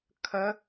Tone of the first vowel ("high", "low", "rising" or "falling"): rising